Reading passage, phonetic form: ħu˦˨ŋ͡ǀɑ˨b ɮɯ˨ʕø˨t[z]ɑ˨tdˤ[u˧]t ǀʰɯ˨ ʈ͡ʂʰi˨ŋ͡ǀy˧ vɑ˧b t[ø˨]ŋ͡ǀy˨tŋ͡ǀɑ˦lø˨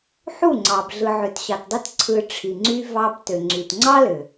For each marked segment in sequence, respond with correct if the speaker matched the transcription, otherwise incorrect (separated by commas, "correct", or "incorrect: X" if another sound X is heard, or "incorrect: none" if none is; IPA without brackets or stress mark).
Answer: incorrect: ɕ, incorrect: ɯ˧, correct